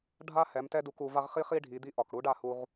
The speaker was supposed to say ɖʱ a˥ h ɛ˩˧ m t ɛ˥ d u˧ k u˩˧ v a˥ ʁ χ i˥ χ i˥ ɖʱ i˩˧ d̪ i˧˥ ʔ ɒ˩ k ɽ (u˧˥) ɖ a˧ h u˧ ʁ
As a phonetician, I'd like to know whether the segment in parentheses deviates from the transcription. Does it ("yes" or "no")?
no